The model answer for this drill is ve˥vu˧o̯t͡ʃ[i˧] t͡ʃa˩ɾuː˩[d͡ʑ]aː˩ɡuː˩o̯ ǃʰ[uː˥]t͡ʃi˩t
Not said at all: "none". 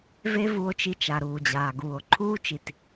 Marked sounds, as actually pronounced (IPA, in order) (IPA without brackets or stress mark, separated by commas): i˧, d͡ʑ, uː˥